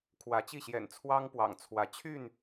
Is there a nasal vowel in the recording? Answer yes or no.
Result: no